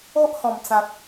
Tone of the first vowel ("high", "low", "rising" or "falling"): high